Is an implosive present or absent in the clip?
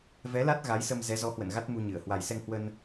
absent